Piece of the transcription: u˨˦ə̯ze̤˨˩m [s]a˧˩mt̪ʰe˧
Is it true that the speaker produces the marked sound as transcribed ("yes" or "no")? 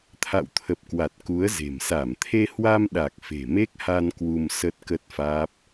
yes